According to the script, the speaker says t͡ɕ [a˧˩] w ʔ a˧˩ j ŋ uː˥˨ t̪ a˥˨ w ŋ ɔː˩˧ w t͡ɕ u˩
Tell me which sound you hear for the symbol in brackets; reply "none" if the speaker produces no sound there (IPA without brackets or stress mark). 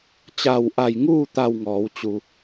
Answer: a˧˩